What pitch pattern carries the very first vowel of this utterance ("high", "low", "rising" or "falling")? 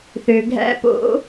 low